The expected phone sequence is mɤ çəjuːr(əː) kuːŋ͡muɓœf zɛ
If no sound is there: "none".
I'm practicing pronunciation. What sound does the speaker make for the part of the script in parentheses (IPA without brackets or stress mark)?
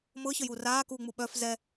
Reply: aː